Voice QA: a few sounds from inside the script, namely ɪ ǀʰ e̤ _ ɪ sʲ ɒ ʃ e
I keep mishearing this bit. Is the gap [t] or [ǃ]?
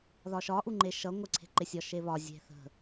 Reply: ǃ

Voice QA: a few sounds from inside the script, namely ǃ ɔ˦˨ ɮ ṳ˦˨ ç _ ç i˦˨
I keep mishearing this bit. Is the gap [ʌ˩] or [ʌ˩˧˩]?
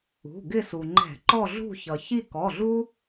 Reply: ʌ˩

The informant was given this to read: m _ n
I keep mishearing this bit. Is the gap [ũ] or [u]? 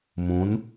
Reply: ũ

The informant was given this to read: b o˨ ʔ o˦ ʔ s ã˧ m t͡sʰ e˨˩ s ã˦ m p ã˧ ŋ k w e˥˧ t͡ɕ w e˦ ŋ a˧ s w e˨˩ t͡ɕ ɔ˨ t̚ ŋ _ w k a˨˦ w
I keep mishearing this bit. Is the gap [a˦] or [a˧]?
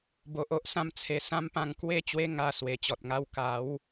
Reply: a˦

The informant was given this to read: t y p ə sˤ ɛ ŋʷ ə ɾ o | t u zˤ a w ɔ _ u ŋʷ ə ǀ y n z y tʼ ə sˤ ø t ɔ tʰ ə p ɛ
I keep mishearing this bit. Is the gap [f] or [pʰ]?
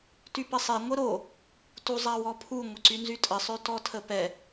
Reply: pʰ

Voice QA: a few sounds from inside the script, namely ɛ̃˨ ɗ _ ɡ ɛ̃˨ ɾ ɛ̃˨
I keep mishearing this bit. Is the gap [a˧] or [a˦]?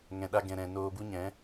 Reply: a˧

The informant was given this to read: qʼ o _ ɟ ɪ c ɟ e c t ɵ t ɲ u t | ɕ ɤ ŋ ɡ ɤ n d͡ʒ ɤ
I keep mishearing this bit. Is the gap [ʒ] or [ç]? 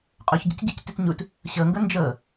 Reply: ç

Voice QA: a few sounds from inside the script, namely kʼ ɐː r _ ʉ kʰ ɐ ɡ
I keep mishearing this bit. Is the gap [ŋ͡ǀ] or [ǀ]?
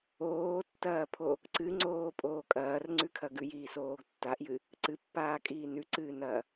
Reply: ŋ͡ǀ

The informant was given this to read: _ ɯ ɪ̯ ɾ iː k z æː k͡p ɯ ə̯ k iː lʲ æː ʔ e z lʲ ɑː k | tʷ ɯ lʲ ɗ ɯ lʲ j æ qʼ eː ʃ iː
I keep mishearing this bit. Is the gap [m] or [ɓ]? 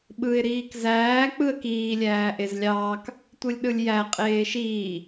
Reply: ɓ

